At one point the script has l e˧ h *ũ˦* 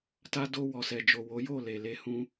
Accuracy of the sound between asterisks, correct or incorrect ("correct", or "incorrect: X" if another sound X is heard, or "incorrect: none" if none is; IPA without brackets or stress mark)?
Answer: incorrect: ũ˧